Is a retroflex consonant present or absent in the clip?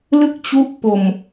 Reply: absent